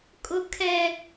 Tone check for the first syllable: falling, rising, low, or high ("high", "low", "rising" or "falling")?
high